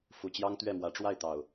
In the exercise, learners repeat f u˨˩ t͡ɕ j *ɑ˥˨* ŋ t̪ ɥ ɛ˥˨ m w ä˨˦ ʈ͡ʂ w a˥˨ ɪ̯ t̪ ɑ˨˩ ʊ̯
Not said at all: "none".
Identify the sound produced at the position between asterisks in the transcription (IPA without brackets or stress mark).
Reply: ɑ˦